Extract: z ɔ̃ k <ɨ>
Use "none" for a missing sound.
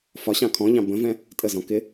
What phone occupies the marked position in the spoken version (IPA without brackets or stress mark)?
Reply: ɪ